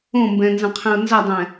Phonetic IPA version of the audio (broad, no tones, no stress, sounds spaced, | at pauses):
õ m b ɛ̃ n z ɐ̃ qʰ ẽ ʊ̯ n z ɐ dˤ ɛ̃